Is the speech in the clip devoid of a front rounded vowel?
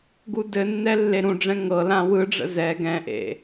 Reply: yes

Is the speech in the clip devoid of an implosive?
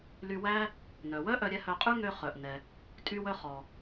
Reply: yes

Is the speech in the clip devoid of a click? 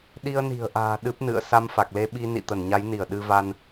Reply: yes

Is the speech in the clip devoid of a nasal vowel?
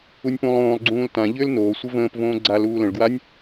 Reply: no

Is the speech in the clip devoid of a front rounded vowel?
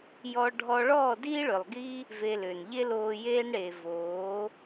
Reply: no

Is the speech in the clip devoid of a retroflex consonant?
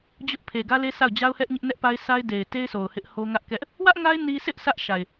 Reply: yes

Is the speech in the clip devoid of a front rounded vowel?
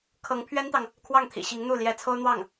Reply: yes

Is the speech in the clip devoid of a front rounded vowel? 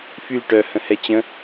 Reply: no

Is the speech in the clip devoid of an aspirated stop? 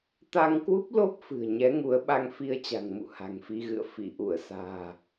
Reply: yes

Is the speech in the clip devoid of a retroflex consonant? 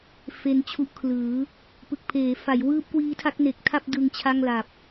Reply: yes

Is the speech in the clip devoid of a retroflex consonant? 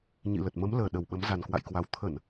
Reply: yes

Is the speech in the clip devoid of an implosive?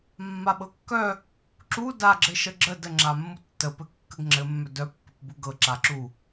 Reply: no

